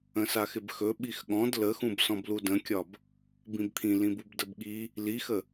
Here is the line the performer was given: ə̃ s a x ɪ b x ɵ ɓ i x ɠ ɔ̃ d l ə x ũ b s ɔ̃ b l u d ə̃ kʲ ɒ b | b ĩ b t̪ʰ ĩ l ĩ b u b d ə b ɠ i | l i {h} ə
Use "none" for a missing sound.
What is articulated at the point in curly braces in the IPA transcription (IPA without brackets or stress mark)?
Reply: x